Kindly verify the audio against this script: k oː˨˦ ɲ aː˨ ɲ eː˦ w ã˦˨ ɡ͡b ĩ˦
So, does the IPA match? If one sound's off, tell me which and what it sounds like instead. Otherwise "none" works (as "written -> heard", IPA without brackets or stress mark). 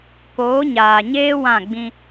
none